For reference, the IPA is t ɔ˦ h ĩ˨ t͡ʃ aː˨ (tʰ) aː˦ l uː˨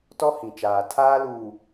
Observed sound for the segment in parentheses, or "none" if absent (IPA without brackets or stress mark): tʰ